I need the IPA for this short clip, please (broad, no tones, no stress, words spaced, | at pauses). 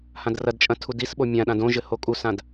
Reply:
hãdrɐdt͡ʃʼɐ̃ tʰudisɓo mʲãɗãd õʒɘ hokʼusãd